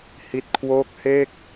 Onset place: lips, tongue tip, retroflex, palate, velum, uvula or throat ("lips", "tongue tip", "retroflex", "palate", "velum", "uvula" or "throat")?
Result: throat